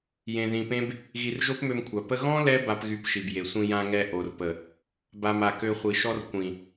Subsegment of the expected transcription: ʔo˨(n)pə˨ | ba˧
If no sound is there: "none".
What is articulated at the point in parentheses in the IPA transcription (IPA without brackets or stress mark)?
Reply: r